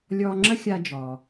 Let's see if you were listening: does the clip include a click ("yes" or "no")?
yes